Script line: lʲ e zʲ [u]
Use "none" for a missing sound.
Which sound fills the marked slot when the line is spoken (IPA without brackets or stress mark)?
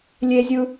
ɯ